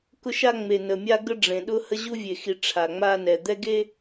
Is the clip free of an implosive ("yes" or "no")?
no